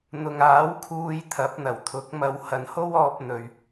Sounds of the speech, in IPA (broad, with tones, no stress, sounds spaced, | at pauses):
n̪ ʊ˨ ŋ aː˨˥ w kʰ uː˧ j t̪ʰ ɐ˨˥ p̚ n̪ ɐ˨˩ w t̪ʰ ʊ˨˥ k̚ m ɐ˧ w h ɐ˨ n h o˥ w ɔː˧ p̚ n̪ ɵ˨ ɥ